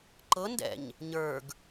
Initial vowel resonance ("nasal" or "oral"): oral